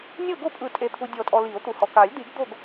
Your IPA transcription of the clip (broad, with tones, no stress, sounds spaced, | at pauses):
nʲ ɤ˦˨ ɡ o˦˨ pʼ ɯ˨˩˦ tʼ e˨ t̪ʰ u˨ dʲ ɔ˨˩˦ tʼ ɔ˨ l i˨˩˦ o̯ t̪ u˨ h ɔ˨ k a˨˩˦ lʲ d̪ i˨˩˦ ɡ d̪ o˦˨ ɡ